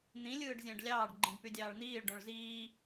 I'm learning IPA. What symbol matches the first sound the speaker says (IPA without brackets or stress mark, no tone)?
n̪